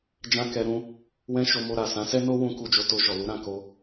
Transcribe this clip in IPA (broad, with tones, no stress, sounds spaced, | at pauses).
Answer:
d͡ʒ ã˦ k ɛ˧ ɾ ũ˦ | w ɛ̃˦ ʃ o˧ m o˧ ɾ a˨ s ã˨˦ s ɛ˦ n o˦ w ũ˧ k u˧ d͡ʒ o˧ t o˧ ʃ ɔ˨ l u˨˦ ɾ ã˦˨ k o˧